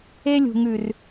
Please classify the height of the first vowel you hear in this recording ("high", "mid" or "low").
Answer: mid